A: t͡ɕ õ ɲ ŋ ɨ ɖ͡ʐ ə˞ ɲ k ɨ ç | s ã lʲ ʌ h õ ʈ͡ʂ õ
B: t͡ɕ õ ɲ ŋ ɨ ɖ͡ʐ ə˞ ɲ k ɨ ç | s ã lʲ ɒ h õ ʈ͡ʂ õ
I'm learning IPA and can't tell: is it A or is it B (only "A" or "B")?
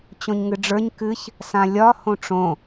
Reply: B